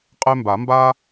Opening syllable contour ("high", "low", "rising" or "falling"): high